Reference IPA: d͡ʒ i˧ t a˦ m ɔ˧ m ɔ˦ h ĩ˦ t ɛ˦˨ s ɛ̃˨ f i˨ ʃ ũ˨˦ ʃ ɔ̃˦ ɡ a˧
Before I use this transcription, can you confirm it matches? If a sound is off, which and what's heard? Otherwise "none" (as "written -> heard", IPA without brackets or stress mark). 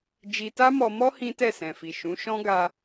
none